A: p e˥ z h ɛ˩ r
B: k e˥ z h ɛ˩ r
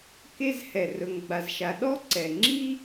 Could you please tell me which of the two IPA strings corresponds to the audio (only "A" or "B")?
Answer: B